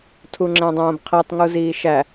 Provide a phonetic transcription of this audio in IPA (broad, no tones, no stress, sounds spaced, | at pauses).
tʰ u ŋ͡ǁ æ̃ dˤ õː b qʰ e tˤ ŋ u z iː ʃ æ